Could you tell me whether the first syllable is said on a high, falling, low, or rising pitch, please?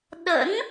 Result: rising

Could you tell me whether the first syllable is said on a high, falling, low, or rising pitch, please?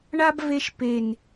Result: high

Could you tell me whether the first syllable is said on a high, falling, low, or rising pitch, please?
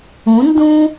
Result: rising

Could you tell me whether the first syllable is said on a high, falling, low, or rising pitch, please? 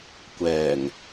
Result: low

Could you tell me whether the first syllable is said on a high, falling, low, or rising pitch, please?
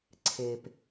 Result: low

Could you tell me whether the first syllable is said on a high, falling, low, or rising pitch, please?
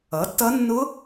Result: rising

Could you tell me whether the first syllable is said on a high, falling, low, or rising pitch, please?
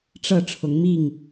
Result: falling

